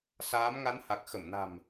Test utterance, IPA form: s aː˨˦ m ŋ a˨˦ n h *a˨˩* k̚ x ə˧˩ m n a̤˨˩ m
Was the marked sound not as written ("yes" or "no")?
no